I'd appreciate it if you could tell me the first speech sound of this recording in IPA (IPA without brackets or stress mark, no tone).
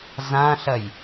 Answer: z